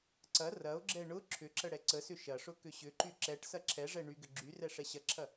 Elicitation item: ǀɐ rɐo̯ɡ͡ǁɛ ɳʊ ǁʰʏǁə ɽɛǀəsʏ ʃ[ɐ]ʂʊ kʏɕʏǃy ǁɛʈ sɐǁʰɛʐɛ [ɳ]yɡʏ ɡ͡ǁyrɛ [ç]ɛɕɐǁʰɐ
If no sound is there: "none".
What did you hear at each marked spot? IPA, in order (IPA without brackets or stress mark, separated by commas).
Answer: ɐ, ɳ, ʂ